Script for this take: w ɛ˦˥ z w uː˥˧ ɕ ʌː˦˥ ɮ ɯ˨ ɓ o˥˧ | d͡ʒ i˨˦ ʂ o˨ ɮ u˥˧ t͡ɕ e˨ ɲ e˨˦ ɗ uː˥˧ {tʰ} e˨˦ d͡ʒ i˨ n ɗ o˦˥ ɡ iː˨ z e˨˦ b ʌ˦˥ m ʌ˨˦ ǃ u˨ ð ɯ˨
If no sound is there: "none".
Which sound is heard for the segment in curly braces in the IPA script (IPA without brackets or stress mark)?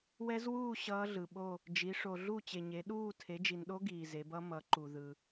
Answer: tʰ